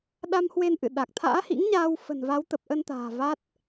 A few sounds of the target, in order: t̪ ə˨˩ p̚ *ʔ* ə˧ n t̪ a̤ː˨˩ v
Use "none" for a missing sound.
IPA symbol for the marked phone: ʔ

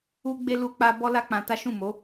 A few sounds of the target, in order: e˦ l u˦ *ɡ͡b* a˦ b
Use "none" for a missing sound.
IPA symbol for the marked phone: k͡p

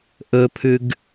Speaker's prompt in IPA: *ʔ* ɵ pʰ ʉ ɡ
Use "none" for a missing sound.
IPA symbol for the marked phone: ʔ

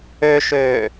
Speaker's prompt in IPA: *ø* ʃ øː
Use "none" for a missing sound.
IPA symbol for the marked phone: ø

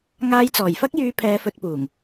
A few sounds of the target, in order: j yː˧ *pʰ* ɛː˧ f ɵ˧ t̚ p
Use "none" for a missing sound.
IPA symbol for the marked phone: pʰ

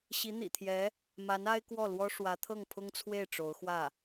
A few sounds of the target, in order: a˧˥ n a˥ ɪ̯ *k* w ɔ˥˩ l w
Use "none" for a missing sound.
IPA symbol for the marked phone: k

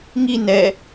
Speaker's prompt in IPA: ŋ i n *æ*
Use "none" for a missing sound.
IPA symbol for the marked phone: ɛ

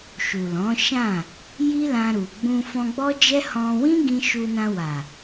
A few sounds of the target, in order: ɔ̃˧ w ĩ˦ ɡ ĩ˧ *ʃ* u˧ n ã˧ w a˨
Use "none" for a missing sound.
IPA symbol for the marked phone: ʃ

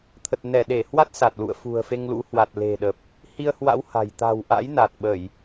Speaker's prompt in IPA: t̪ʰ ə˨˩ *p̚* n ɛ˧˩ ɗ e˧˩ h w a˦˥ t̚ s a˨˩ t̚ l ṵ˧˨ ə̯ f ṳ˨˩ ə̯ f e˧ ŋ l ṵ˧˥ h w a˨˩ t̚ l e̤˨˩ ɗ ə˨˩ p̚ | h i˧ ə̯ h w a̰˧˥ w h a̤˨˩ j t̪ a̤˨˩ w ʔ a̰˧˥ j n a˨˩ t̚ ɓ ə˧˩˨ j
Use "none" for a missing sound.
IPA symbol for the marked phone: t̚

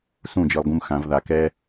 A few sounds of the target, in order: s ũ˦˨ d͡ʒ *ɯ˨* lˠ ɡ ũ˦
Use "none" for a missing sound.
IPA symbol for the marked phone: ɯ˨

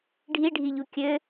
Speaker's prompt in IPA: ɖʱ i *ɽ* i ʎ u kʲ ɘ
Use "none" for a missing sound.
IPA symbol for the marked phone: ɖʱ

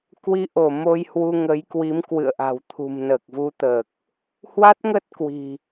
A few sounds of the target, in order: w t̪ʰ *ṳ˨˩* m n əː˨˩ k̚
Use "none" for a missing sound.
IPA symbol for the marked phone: ṳ˨˩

